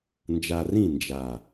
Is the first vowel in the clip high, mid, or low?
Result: low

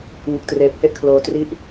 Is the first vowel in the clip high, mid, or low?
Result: high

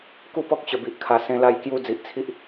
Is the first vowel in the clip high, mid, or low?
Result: high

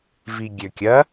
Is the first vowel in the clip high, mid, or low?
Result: high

